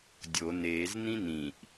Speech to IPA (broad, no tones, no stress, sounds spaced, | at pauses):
dʲ o n eː z n̪ ĩ n ĩ ʔ